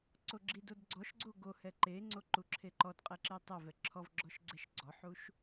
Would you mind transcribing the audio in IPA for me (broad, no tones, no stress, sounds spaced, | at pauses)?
ǀ o ɡ͡ǁ i d o d ɡ͡ǀ ɔ ʃ ɡ͡ǀ o ɡ o h ɛ ǃ e ŋ͡ǀ o ǃ u ǁʰ e ǃ ɔ d qʼ ɛ ǁ e tˤ ɛ v ɛ ǁʰ ɔ v ɡ͡ǁ ɔ ʃ ɡ͡ǀ ɛ ʃ ɡ͡ǀ ɔ ħ u ʃ